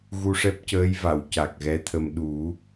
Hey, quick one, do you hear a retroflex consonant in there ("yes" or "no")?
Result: yes